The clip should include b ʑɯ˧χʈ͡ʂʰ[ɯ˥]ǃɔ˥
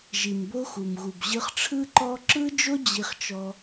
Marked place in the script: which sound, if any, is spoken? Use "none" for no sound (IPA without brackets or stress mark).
ɯ˥